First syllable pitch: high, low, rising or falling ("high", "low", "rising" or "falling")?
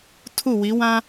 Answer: falling